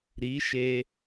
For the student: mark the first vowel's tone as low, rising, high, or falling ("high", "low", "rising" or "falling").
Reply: rising